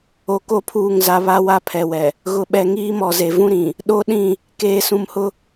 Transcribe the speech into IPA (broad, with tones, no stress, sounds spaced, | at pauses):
o˨ k o˦ pʰ uː˦˨ ŋ z a˦ β a˦ w a˦ pʰ ɛ˨ w ɛ˨ | ɣ ʊ˨ ɓ ɛ˨ ŋ iː˦ m ɔ˨ z e˨ v ũ˦ ɾ ĩ˨ | ɗ o˦ ɗ ĩ˦˨ | k eː˨ s ũ˨ m h ʊ˦